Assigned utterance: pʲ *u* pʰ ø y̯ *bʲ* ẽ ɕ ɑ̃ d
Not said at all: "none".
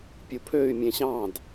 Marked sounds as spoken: u, mʲ

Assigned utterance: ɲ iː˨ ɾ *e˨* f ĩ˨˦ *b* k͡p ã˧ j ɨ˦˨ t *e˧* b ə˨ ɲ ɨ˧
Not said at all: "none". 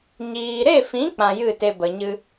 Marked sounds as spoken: e˦˨, none, e˧

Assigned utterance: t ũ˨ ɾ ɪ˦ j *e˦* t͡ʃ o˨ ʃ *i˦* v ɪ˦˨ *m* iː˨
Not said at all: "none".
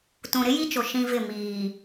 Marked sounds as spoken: i˦, ĩ˦, m

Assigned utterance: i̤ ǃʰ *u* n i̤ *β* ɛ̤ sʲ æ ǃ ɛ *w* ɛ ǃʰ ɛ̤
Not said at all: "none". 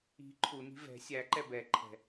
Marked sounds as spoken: u, v, b

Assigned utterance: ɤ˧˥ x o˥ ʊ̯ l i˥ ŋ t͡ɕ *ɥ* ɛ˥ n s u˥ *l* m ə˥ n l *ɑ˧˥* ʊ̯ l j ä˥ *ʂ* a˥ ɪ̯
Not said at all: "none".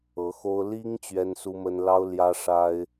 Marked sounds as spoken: ɥ, none, ɑ˥, ʂ

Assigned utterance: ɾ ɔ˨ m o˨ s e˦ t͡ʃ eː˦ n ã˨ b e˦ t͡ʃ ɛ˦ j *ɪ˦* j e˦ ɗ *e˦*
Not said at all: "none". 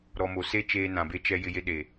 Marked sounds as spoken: ɪ˦, e˨

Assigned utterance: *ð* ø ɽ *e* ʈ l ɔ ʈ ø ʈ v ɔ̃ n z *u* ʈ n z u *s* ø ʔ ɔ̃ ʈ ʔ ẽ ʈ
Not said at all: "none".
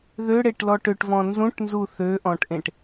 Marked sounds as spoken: ð, e, ũ, θ

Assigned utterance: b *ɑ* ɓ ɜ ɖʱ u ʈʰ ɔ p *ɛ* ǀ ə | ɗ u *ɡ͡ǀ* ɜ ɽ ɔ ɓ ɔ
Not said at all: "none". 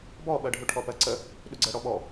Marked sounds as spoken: ɔ, ɜ, ɡ͡ǀ

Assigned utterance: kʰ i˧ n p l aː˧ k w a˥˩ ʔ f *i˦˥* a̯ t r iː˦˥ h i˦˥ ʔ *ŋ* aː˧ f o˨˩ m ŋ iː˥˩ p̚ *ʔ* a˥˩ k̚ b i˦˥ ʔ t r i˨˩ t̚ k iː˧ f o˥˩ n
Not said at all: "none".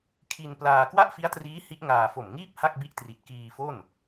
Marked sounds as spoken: i˦˥, ŋ, h

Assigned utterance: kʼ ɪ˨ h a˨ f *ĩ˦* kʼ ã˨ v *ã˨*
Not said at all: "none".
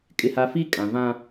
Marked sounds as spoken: i˦, ã˦

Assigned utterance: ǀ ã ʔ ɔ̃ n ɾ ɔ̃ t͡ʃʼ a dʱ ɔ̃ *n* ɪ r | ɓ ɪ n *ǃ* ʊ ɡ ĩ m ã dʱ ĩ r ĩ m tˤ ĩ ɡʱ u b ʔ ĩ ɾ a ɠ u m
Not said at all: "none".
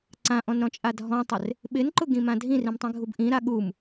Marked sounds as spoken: tˤ, ǃ

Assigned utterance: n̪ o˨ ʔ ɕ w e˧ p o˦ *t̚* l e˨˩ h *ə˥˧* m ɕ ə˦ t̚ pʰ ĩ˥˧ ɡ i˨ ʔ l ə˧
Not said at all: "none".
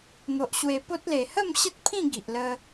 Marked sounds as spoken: t̚, ə˥˧

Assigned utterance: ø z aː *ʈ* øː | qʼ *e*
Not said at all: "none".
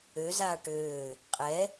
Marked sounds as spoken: ʈ, ɛ

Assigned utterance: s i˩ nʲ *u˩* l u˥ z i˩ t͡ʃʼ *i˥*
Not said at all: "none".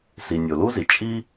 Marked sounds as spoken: o˩, i˥

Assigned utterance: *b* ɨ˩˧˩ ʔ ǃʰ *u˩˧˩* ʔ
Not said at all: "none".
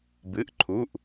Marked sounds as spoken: b, u˩˧˩

